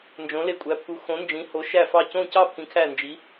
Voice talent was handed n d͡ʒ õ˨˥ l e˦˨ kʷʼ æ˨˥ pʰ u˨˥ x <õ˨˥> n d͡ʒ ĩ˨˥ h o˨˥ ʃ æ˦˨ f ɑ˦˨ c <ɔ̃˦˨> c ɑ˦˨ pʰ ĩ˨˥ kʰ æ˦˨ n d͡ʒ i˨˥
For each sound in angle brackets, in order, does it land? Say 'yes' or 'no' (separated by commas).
yes, no